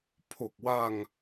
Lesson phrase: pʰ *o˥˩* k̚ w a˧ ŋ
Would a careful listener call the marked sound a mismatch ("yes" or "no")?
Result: yes